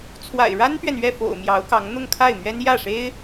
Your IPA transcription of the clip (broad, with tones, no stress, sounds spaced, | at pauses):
t͡sʰ w a̰˨˩ ɪ̯ ɻ a˥ n p ɥ ɛ˨ n ɥ ɛ˥˩ f o̰˨˩ ʊ̯ m j ɑ˧˥ ʊ̯ k ɑ˧˥ ŋ n̪ ʊ˥˧ ŋ kʰ a˥˩ ɪ̯ m ɥ ɛ˥ n j ä˥˩ ʂ e˥ ɪ̯